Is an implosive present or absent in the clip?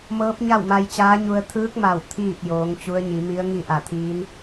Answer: absent